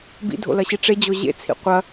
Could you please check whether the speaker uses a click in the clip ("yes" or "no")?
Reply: no